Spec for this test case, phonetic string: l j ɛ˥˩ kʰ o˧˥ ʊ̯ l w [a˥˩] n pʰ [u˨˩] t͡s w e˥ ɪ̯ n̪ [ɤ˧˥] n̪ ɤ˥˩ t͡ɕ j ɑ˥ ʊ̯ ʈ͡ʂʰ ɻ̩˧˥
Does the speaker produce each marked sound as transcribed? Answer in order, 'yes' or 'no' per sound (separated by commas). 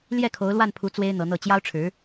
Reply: yes, no, yes